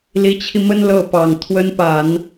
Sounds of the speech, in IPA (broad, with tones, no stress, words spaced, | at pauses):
li˧˥t͡ɕʰi˧mə˥n lɤ˥˩pɑ˨˩ŋ t̪ʰwə˥npa˨˩˦n